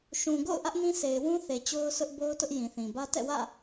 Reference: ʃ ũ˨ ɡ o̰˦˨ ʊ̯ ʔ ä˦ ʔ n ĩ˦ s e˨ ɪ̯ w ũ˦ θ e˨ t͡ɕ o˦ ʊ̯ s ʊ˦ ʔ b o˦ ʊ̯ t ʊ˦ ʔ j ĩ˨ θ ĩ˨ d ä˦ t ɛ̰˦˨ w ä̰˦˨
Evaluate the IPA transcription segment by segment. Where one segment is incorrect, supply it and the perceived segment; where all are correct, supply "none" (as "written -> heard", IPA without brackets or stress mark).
d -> b